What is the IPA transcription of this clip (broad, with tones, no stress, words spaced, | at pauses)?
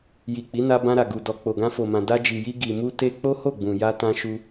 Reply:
ji˨ k͡pi˨˦na˧bã˧ɾa˨ ɡu˨dɔ˨ k͡po˨ɡã˧fo˨mã˨ da˧d͡ʒi˨ji˧ ɡi˨mu˧ te˧ k͡po˦ho˦˨ɡ͡bũ˨ ja˧tã˧ʃu˧